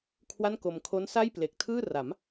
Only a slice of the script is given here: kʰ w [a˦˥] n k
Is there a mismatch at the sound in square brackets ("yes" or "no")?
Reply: yes